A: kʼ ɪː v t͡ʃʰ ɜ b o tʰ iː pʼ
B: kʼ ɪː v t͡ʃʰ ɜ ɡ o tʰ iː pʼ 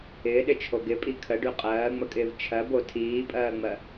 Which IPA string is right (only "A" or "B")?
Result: A